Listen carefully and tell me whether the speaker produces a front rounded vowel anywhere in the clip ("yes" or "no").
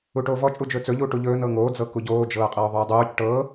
no